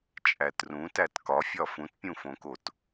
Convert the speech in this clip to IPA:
t͡ʃʼætrũtæt kɒfʲɒ fũtpʲũfõkot

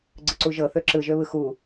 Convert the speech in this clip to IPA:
ɡ͡ǀɯǀuʒɤ θøǁɯʒøβɯ xu

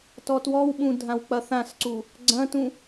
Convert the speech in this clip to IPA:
tɔtwɔwɓũ dʱãwk͡pɐθãsǀu | ɡ͡ǀɐ̃tũ

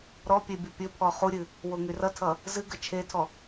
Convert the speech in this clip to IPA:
ɾɔpʲe bʲʌpʲɵpʰɔ χuɾʲɨ | woŋyrʌtʰʌ | zɨɡə t͡ʃʰetʰɔ

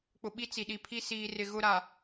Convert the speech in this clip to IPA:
k͡pʊ˨ɓi˦ t͡si˨ɗi˨pʰi˦ siː˨ rɪ˨ɣʊ˦ɾa˨

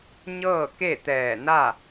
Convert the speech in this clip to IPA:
ɲɤː˥˨ke˥˨t̪ɛː˧˩ na˥˨

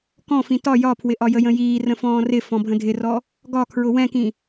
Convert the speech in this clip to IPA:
kɔ̃fĩ tɒ jɒpʰwɪʔɒjə jə̃jiː rə̃fɔ̃ːrɪ fɔ̃bʱə̃dʱɪrɔ | ɡɒkʰɹʊ wɛ̃kĩ

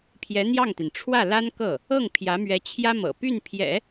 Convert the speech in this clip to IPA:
pʰjɛ˧˥n̪jɑ˥˩ŋt̪i˩n ʈ͡ʂʰwä˥˩la˥nkɤ˥˩ | ɤ˥˩ŋpʰjä˧˥mɥɛ˧˥ t͡ɕʰjä˥mɤ̰˨˩ py˥˩npʰjɛ̰˨˩˦

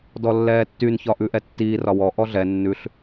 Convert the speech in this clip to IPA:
dɔlːɛːtːyn çɒʔʉʔɛtːiː rɒwɔ ʔɔɮɛ nːʉɬ

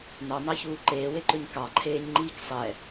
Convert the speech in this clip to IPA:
nɑnɑçuː ǃeːweǃɵɲ kɑǃʰeːɲŋ͡ǃiːk sˤɛ

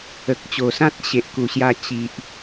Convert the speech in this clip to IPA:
ə˨k̚t͡ɕo˨˩sã˦t̚ ɕe˨ʔku˨˩ɕja˧ t͡ɕi˨ʔ

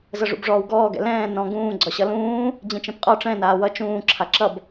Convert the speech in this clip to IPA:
zɤʐṵbʐɔːwɡɔː ɡɛ̰lɛ̃ː nɔ̃ ɡũː ɡ͡ǀɒɕʌlũː | d͡ʑĩt͡ʃɛ̃pqʼɒ ʈ͡ʂɛ̃ naːwʌ t͡ʃũː ǁʰaǁʌb

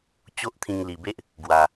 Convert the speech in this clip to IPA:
t͡ɕo˦ʔt̪ʰĩ˧ŋli˨˩be˦ʔ | ɡwa˨˩

